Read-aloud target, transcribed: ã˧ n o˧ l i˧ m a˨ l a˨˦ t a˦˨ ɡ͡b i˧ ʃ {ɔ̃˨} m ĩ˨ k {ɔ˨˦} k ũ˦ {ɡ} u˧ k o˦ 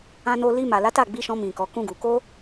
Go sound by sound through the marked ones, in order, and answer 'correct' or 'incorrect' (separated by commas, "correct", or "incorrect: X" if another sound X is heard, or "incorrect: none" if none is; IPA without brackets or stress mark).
incorrect: ɔ̃˧, correct, correct